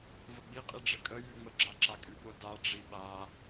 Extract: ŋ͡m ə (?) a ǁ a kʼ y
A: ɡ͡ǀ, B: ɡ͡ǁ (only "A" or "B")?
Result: B